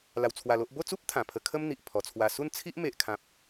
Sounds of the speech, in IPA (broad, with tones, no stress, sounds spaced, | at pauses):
l a˧ w t͡sʰ w a˧ l o˦ ʔ b o˥˧ t͡s u˦ p̚ t̪ʰ ã˨˩ pʰ ə˧ kʰ ə˦ m n̪ i˨ ʔ pʰ ɔ˨˩ t͡sʰ w a˧ s u˥˧ n t͡sʰ i˦ ʔ m e˨ ʔ kʰ ã˨ p̚